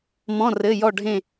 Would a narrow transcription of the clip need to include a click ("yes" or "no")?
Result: no